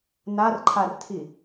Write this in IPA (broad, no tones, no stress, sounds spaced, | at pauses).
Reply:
n a r ǃʰ a r tʰ i